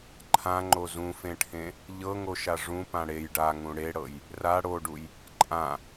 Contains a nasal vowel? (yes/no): yes